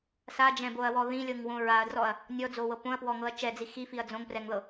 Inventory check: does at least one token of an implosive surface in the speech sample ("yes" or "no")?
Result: no